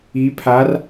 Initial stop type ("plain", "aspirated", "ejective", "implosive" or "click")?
aspirated